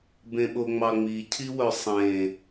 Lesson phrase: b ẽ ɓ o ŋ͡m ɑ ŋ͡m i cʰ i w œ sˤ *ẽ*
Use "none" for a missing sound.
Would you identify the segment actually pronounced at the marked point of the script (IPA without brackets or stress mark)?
ẽ